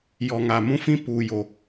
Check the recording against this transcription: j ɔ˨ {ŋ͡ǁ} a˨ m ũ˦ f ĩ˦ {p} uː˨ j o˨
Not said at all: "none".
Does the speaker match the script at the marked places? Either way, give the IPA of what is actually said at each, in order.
ŋ, p

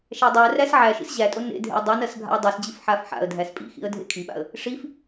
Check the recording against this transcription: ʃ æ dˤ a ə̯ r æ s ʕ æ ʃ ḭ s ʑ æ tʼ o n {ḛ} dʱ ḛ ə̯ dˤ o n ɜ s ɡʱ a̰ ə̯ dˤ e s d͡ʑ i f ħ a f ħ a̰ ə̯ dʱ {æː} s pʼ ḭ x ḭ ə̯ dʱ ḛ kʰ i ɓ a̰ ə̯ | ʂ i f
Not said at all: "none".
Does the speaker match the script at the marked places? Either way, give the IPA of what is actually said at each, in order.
ḛ, æ

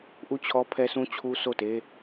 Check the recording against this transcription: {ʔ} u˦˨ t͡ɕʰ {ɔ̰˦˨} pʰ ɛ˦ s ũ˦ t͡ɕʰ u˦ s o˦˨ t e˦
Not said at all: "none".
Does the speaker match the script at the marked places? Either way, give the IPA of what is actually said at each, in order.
ʔ, ɔ˦

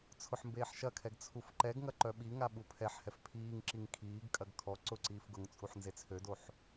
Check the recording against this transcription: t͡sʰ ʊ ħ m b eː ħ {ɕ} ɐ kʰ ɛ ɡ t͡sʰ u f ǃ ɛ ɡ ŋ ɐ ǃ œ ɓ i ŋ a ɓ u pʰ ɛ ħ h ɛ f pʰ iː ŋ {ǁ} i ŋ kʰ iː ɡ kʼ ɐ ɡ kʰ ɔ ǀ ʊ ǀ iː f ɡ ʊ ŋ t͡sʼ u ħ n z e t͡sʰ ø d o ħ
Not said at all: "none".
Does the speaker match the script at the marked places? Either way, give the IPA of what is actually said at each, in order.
ʃ, ǁ

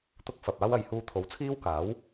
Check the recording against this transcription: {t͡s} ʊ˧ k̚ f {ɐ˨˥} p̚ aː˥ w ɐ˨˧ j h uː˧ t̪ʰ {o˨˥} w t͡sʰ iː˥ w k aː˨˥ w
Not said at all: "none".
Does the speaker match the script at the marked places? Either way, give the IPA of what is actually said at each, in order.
t̪, ɐ˨, o˨˥

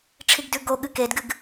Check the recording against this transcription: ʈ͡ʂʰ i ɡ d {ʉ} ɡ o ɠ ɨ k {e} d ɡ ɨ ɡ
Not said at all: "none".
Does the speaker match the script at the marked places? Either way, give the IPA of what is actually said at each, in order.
ʉ, e

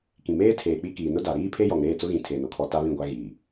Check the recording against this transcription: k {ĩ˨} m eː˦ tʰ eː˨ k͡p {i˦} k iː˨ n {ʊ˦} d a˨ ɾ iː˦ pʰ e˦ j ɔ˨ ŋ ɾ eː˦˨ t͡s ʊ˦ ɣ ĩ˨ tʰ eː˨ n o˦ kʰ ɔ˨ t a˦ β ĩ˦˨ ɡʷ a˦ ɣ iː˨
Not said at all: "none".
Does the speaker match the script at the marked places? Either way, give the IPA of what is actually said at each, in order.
ĩ˨, i˦, ʊ˦

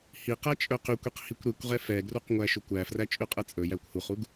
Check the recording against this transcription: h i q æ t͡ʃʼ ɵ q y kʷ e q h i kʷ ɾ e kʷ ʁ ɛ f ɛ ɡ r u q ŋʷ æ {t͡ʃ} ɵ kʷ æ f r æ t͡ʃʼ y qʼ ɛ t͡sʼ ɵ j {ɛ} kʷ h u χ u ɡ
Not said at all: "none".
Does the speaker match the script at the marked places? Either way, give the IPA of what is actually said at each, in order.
ʃ, æ

